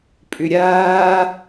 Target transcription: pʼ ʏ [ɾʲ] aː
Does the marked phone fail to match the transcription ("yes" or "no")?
no